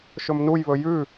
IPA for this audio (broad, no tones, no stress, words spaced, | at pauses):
ʃɵmnujβɵ jʉ